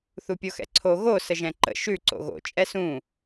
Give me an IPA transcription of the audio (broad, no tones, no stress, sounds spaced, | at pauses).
θ u pʲ o x ɛ̰ ǀʰ o ɣ o s ə ʒ ɛ̃ ǃ ə̰ ʃ ʉ ǀ o̰ ɣ o̰ t͡ʃʼ ɛ s ũ